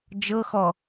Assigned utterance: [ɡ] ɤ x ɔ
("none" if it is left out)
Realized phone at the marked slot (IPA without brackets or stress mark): d͡ʒ